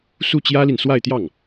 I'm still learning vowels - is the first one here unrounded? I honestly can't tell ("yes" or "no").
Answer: no